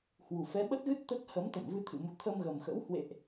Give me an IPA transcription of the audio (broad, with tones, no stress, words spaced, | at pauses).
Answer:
hwu˨˩fɛ˨˦ ɓə˦˥t̚ɣɨ˦˥t̚ t̪ə˦˥t̚hə˨˦m t̪ə̰˧˨mvɨ˧t̪ʰɨ̰˧˨mu˨˦ t̪ʰə˧mɣə˨˩mxə̰˧˥w hwḛ˧˨ʔ